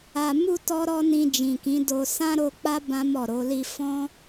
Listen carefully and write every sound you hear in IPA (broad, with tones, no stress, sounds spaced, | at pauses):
a˨ m u˧ t ɔ˦ ɾ ɔ˦ n ĩ˧ d͡ʒ ĩ˨ k ĩ˨˦ d o˧ s ã˦ ɾ o˧ k͡p a˦ b ã˦ m ɔ˦˨ ɾ o˨˦ l i˧ f ɔ̃˦